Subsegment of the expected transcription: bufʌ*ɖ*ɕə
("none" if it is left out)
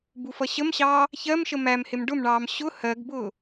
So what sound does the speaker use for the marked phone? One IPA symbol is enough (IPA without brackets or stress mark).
none